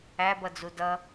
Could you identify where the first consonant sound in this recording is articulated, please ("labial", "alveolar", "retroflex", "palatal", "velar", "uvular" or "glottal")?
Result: labial